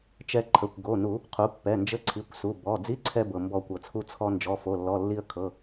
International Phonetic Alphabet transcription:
t͡ʃ ɛ˧ ǃʰ ə˩˧˩ kʷ ɡ o˩˧˩ n u˨˩˦ | qʰ u˩˥ pː ɛ˩˧˩ n d͡ʒ ə˧˥˧ ǀʰ i˩˧˩ kʷ s u˩˧˩ b ɔ˩˧˩ d͡z i˧˥˧ ǀʰ ɛ˧ b ɤ˩ m b ɔ˨˩˦ kʷ ɤ˩ t͡sʰ u˧ t͡sʰ ɔ˧ n d͡ʒ ɔ˩˧˩ f o˩˧˩ lː ɔ˩˧˩ lː i˧ ə̯ kʰ ɤ˩˧˩

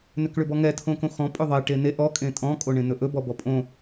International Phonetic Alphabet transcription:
n ʏ k ɭ ʏ b ɔ ŋ ɛ tʰ õ k õ x ɔ̃ pʼ ʏ ðˤ e ʈ e n e ʔ ɔ kʼ ẽ tʼ ɔ̃ kʼ o ɳ ẽ n ɵ ʔ ɵ b ɔ b ɔ pʼ õ

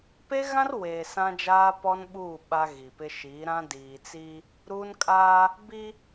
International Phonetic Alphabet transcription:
p e˦ ɣ ã˦ r w eː˨ s ã˦ d͡ʒ aː˦ p ɔ˦ n ɓ uː˦˨ ɓ a˦ ɣ i˨ p ɪ˦ ʃ iː˨˦ ɾ ã˦ d iː˨ t͡s i˦ | ɾ uː˦ n kʼ aː˦ | b i˦

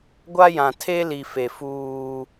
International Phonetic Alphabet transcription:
ɡʷ a˦ j ã˨ tʰ e˦ l i˨ f e˨ f uː˦

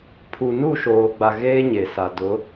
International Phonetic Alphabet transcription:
pʰ u˨ n u˦˨ ʃ oː˨ ɡ͡b a˨ ɣ eː˦ ɲ e˨ s a˨ d ʊ˨˦

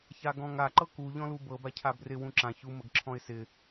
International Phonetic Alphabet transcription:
ç a ɡ ɔ̃ ŋ a ǃ ɤ k u ʎ ɔ̃ l u b ɤ b a cʰ a b r ɪ w ũ ǁ ã ç u m ə ɡ ǁʰ ɔ̃ ɪ̯ s ɪ

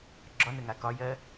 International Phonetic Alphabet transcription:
ɡ͡ǁ ɒ n ə ŋ a k ɒ j ɜ

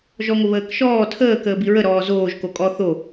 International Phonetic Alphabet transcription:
ʒ ɔ ŋʷ ə β əː k ʃ ɔː tʰ əː k əː b i ɹ ə ɾ ɔː z oː ʒ k o kʼ ɔ θ o

